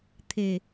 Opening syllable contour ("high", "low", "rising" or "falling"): low